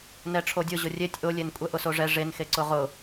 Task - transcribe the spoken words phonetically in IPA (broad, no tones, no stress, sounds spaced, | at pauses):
n ɛ ʈ͡ʂʰ o dʲ ʊ ʑ ʊ rʲ e tʲ ʔ ʊ lʲ e n kʷʼ ɛ ʔ ʊ s o ʐ ɛ ʐ e n x e ǀ ʊ ʁ ʊ